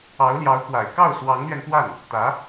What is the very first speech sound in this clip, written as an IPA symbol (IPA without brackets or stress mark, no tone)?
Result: ɑ